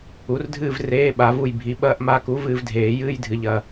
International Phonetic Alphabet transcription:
u˩˥ r dʱ ɨː˦˨ v r eː˧˥˧ ɓ a˨˩˦ v u˦˨ j bʱ i˩˥ ɓ ɐː˧˥˧ ʔ m a˧˥˧ k u˧˥ v ɨː˦˨ v dʱ eː˨˩˦ j ɨː˧˥˧ j dʱ ɨ˨ ʎ ɐ˨

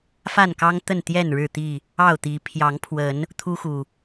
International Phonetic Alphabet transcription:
f a˥˨ n k ɑ˦ ŋ t̪ ə˥˨ n t̪ j ɛ˥˨ n ɻ ɻ̩˥˨ t̪ i˥˨ | ɑ˥˨ ʊ̯ t̪ i˨˦ pʰ j ɑ˨˦ ŋ pʰ w ə˨˦ n | t̪ʰ u˦ x u˨˩

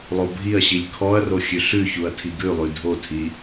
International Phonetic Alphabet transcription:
lˠ o bʱ i ɐ̯ ɕ i lʲ kʰ ɔ ɐ̯ r o xʲ ʉ ɬ ʉ ç u ɐ̯ tʰ i ɡ ʉ lˠ ʉ dʱ o tʰ i

